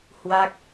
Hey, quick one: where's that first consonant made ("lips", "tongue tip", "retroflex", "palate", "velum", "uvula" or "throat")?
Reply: throat